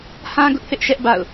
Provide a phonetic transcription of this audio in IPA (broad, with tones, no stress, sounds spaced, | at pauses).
h ã˦ ɡ ʊ˦ ʔ θ ɪ˦ ʔ ʃ ɛ˦ ʔ b a̰˦˨ ʊ̯